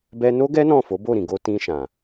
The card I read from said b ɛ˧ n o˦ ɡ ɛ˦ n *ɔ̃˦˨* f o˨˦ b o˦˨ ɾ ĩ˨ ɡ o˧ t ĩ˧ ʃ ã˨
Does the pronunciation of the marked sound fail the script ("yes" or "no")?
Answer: no